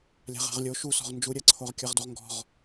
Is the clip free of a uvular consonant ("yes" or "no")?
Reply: no